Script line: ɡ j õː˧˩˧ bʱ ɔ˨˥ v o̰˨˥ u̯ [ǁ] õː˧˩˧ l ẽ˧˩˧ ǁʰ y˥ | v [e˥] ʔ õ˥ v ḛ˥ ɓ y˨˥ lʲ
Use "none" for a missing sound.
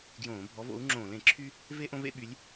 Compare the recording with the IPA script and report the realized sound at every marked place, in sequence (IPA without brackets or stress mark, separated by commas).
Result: ŋ͡ǁ, e˥